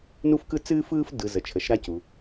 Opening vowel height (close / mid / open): close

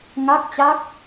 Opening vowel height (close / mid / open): open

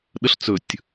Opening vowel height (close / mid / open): mid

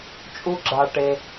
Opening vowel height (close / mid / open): close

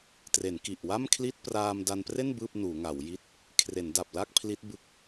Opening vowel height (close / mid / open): mid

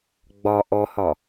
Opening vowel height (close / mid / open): open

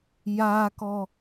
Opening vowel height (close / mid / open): open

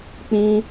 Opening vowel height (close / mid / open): close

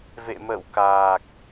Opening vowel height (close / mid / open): mid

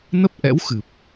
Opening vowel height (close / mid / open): mid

